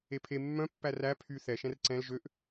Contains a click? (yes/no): yes